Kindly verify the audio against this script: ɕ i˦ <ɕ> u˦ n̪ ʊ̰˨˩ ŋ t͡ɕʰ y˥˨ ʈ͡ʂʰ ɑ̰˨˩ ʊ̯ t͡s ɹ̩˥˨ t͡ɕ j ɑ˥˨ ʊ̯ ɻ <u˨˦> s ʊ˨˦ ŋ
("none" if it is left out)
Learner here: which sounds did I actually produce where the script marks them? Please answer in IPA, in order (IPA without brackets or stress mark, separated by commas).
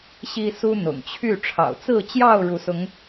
s, u˨˦